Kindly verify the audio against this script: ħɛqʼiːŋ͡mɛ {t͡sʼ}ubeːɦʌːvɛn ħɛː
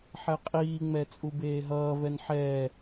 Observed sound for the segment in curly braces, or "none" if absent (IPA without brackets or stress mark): t͡sʼ